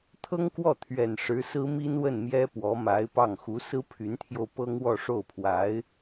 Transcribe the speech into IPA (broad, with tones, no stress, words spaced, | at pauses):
t̪ʰɤ˥ŋkwɔ˥˩t̪ʰɥɛ˨˩n ʂɻ̩˧˥sɹ̩˥mi˥nwə˥˩n mjɛ˥ pwɔ˧˥ma˧˥ɪ̯pɑ˥˩ŋ xu˧˥sɹ̩˥ pʰy˧˥nt̪ʰjo˧ʊ̯ pɤ˥ŋwɔ˥˧ ʂo˥˩ʊ̯pʰwa˧˥ɪ̯